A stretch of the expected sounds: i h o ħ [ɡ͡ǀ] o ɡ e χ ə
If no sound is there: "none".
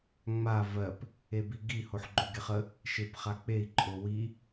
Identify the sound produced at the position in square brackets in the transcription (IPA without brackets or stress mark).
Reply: ɡ͡ǃ